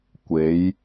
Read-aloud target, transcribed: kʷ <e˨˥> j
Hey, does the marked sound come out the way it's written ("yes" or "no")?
yes